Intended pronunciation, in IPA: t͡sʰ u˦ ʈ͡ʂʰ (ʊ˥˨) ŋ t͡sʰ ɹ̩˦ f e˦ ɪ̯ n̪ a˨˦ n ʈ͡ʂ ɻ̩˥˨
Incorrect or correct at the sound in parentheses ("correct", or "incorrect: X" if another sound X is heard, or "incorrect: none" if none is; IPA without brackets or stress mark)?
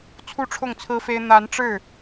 correct